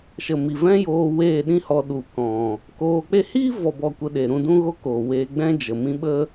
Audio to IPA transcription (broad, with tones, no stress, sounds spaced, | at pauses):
ʃ ə˨ m i˨ v ɛ̃˦ j oː˧ w eː˦˨ ɗ ĩ˦ h ɔ˧ ɗ u˨ k ɔ̃˨ | k oː˧ k͡p e˦ h iː˦ v ɔ˨ b ɔ˨ kʷ ə˨ ɗ e˨ ɾ ũ˧ d ũ˦ ɣ o˦ k oː˨ w eː˧ ɡ͡b ɛ̃˦ d͡ʒ ə˨ m ĩ˦ ɓ ə˦